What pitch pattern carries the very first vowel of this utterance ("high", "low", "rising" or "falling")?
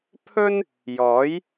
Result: high